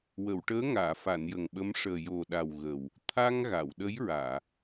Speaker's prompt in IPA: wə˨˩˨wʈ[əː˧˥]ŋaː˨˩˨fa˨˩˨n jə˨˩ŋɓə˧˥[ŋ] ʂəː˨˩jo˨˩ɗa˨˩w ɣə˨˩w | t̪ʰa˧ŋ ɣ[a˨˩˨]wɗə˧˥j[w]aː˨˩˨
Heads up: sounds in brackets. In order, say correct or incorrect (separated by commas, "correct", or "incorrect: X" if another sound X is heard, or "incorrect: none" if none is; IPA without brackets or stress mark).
correct, incorrect: m, correct, incorrect: ɹ